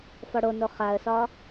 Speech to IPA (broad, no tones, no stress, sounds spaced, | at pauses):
f ɔ ɽ o n o χ a ə̯ s ɒ